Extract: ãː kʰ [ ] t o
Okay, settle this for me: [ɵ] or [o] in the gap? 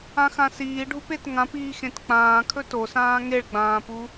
ɵ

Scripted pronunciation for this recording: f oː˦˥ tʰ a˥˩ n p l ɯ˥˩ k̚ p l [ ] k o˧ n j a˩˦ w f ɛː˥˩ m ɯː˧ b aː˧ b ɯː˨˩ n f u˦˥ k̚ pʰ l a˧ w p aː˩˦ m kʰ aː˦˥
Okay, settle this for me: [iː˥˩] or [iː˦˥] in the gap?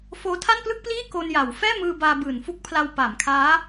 iː˥˩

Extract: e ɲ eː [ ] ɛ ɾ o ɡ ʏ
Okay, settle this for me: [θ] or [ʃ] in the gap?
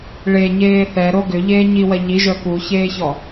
θ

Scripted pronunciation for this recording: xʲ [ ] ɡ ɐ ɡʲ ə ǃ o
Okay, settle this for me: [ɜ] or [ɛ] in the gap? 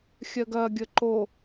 ɜ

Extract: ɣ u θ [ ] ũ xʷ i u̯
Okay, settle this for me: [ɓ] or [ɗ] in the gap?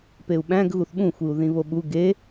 ɓ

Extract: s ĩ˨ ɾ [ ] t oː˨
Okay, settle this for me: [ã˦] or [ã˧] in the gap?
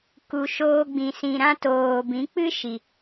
ã˦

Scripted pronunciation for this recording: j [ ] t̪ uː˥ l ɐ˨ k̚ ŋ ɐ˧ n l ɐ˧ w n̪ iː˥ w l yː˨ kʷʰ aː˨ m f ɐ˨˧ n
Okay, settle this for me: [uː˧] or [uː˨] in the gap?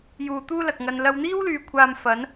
uː˨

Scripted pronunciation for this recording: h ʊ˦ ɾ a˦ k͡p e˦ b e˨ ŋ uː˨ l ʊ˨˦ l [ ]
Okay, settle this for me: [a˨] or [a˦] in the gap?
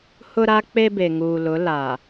a˨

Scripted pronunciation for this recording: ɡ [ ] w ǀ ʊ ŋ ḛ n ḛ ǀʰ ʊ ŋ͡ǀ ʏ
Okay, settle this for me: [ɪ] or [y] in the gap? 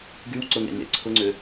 y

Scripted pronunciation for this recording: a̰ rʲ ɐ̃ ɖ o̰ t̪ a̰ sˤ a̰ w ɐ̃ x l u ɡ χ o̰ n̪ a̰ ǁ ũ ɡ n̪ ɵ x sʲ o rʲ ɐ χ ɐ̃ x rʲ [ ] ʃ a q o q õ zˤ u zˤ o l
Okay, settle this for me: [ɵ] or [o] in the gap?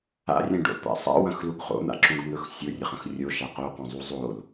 o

